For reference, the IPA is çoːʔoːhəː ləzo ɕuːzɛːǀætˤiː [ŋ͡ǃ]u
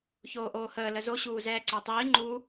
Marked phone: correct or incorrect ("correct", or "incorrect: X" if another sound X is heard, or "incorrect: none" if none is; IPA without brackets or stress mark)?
correct